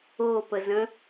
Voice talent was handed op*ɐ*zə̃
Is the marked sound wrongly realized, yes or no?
yes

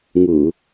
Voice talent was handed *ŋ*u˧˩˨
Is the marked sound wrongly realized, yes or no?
no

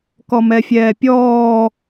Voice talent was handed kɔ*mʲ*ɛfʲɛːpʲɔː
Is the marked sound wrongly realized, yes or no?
yes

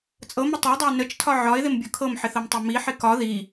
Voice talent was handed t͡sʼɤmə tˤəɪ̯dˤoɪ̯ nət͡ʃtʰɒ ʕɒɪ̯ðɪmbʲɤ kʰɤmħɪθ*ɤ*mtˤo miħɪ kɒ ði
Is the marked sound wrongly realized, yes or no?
no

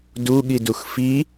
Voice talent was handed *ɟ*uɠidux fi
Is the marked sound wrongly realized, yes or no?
yes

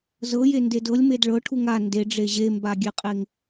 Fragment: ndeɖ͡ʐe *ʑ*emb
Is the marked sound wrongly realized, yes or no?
no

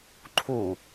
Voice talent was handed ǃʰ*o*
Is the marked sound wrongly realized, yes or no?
yes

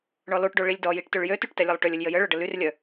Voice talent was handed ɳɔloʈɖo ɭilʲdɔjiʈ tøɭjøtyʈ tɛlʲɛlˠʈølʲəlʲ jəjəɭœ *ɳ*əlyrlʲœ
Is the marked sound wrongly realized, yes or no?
yes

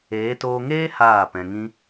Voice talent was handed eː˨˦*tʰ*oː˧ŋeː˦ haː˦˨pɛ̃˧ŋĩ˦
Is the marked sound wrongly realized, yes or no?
yes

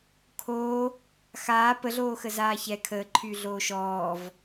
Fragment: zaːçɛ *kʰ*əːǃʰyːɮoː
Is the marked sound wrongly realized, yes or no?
no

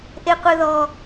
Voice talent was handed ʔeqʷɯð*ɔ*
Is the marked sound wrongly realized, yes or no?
no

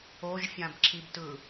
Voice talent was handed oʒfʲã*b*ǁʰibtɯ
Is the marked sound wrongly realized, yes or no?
no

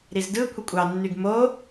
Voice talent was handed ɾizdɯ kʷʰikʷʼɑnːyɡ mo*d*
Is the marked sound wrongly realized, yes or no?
yes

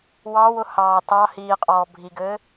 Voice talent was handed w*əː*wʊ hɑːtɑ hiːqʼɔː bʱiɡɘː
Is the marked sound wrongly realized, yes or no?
yes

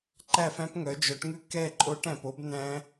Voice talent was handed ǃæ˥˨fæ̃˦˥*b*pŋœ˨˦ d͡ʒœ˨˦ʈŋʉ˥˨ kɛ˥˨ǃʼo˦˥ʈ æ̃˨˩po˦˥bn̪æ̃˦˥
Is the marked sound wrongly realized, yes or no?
yes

